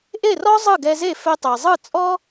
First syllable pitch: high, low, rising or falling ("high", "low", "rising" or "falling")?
falling